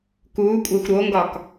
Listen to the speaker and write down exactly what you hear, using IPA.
k uː kʷʼ æ xʷ ɾ o ŋ ɡ ɒ k

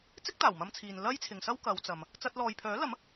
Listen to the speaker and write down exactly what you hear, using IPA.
t͡s ɪ˥ k̚ t̪ aː˨˩ w m ɐ˧ m t͡sʰ iː˨ n l ɐ˥ j t͡sʰ ɪ˨ ŋ s ɐ˥ w k ɐ˨˧ w t͡s ɐ˨ m | t͡s ɐ˧ t̚ l ɔː˨ j pʰ œː˨˥ l ɐ˨˥ m

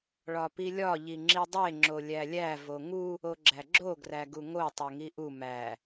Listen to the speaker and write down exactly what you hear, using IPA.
ɭ ɒ p i lʲ ɒ ʎ i ŋ͡ǁ i dˤ e ŋ͡ǁ o lʲ æ lʲ æ v o ŋ u | o ɡ͡ǁ æ ɡ͡ǁ o ɡ r æ ɡ u ŋ o tˤ o ŋ i ʔ u m æ

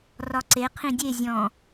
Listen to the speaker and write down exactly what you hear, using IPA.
r ɒ ǀ e qʰ ĩ dʲ e zʲ ɔ̃

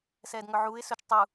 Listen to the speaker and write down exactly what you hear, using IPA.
s ɛː d ŋ ɵ ʕ uː ɪ̯ s ɵ t͡ʃ tˤ u

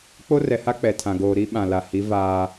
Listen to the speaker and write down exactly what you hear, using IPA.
k͡p o˦ r ɛ˨ h a˦ k͡p ɛ˨ tʰ ã˨ ɡ oː˨ ɾ i˦ ɓ ã˨ l a˨ h i˨˦ v aː˦

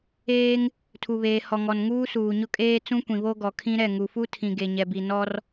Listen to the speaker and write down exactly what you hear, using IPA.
eː˦ ŋ | tʰ u˨ β eː˨ h ɔ˨ ŋ ɔ˨ n ŋ uː˦ s uː˨ ɲ ʊ˦ kʼ eː˦ t͡s ũ˦ kʷ ĩ˨ β o˦ ɡ ɔ˨ kʰ ĩ˦ ɾ ɛ˦˨ ŋ u˨ f u˦ tʰ ĩ˨ ɡ e˨ ɲ ɛ˨ b i˨ n ɔ˦ r

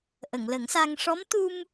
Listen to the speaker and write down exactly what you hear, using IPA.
ʔ ə˨˩˨ ŋ l ə˨˩˦ ŋ s a˧ ŋ ʂ ɔ˧˥ m t̪ u˧ m

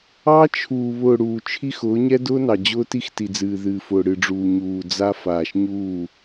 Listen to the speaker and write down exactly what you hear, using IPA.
ɑ˦ t͡ʃʰ uː˨ β ʊː˨ ɽ uː˨ t͡ʃʰ i˦ x ʊː˨˦ ɲ ɛ˦ d ʊː˦ n ɑ˨ d͡ʑ ʊː˦ t i˦ x t i˨ d͡z ɨː˨ ð ɨː˨ f ʊː˨ ɽ ɨ˨ ɖ͡ʐ uː˨ ɲ uː˨ d͡z a˦ f aː˨ ʃ ɲ uː˦˨

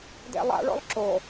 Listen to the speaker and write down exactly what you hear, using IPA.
d ḛ lˠ a̰ ɭ o̰ lˠ ǁ o

